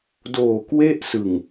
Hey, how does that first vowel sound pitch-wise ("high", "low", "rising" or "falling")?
low